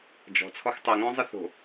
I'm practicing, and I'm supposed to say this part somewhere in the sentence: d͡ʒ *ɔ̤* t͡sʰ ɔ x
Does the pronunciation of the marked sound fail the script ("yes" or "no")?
no